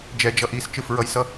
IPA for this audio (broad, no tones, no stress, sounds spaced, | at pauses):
d͡ʒ ɛ d͡ʒ ʌ ʔ i s t͡ʃ ɯ f ɹ ʌ j s ʌ